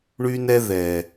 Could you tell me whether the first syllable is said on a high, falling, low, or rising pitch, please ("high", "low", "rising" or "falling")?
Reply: high